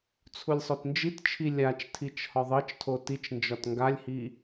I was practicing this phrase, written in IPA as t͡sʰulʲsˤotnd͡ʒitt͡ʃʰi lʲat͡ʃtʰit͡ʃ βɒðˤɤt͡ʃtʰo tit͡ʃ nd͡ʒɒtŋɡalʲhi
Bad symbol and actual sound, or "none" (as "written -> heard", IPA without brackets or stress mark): β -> h